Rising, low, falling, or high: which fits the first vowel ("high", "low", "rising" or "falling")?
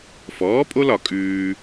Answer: rising